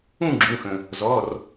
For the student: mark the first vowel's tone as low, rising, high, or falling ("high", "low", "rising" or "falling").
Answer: falling